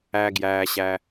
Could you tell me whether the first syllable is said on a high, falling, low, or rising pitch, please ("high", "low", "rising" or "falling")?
low